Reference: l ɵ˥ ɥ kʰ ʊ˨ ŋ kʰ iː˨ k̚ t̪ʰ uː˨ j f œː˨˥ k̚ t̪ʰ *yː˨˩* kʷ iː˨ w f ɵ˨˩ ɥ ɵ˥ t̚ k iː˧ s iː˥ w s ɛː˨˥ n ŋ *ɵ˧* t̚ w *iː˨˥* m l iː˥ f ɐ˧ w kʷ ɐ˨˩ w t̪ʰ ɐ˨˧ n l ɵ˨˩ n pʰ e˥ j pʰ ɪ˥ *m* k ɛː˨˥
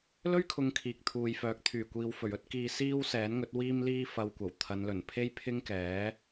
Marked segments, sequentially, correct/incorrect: correct, incorrect, incorrect, incorrect

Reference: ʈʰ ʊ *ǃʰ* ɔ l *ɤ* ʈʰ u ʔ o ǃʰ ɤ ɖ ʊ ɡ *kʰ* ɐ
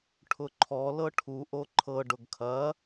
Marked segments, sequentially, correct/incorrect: correct, correct, correct

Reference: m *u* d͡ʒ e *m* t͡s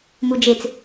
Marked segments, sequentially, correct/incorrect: correct, incorrect

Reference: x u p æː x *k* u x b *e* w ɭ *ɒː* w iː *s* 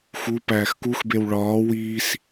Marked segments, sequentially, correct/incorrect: correct, correct, correct, correct

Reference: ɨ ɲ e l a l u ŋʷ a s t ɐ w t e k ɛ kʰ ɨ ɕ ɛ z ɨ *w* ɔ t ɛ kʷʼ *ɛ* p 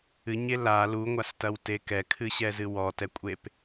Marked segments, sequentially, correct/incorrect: correct, incorrect

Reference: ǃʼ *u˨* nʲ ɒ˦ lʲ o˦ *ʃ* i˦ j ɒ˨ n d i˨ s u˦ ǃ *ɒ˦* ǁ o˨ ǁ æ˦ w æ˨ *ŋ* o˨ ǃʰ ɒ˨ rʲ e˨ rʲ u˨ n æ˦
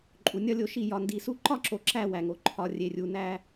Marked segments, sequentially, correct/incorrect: correct, correct, correct, correct

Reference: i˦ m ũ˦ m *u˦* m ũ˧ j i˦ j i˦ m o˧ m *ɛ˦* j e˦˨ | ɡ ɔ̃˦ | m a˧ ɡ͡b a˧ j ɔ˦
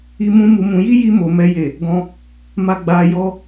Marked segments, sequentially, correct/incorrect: incorrect, correct

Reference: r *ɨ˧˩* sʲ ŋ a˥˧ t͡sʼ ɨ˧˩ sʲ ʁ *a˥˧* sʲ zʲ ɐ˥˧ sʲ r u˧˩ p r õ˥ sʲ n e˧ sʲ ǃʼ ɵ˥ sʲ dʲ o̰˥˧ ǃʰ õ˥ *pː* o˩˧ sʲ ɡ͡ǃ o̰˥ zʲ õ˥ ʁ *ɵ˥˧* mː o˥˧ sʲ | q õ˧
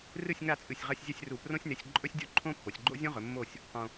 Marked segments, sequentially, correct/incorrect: incorrect, incorrect, correct, incorrect

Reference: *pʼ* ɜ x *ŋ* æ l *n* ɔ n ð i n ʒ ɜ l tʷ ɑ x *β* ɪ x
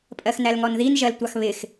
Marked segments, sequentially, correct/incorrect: correct, incorrect, incorrect, correct

